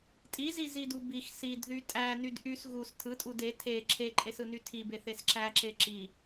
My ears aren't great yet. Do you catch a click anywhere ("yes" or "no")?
yes